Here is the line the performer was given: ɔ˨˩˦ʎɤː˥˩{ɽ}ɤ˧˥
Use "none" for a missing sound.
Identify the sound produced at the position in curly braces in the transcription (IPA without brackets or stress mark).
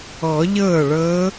ɭ